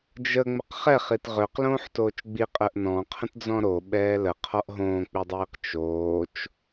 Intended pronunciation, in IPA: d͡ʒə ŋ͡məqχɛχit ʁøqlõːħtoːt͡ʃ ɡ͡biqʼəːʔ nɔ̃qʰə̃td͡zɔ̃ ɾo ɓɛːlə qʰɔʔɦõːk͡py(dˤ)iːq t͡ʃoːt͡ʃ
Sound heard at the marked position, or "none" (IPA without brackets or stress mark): dˤ